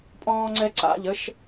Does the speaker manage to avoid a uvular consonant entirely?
yes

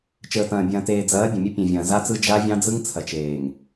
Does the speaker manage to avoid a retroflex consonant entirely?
yes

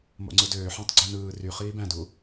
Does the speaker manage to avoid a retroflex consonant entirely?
yes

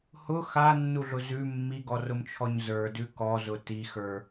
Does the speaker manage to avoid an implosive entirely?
yes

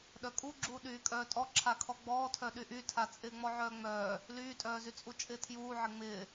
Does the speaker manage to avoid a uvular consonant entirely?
yes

